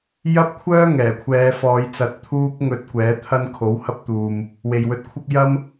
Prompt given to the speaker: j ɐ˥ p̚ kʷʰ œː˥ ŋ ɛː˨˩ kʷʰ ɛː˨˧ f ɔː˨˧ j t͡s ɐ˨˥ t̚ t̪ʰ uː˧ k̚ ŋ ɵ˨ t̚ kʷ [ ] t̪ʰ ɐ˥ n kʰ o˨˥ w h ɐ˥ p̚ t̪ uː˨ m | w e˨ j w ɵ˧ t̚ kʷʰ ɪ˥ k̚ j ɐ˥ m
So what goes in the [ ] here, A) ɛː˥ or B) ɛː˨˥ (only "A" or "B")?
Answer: B